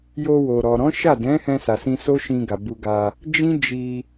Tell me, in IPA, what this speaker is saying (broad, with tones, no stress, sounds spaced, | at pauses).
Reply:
j o˧ w o˨ ɾ ɔ˨ ɾ ɔ̃˨˦ ʃ a˦˨ d ɛ̃˨˦ h ɛ̃˧ s a˨ s ĩ˧ s o˦ ʃ ĩ˧ ɡ a˨ b u˧ ɡ a˧ | d͡ʒ ĩ˦ d͡ʒ i˧